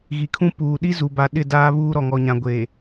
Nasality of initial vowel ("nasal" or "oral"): oral